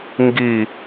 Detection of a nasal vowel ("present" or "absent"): absent